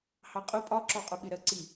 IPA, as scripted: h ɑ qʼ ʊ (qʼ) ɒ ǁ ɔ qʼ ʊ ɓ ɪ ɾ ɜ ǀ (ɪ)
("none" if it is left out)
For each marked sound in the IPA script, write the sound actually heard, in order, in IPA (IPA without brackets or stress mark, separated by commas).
pʼ, i